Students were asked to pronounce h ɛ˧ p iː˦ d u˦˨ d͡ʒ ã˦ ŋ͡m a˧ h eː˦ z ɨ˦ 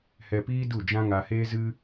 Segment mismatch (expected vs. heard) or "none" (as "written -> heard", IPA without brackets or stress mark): ŋ͡m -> ŋ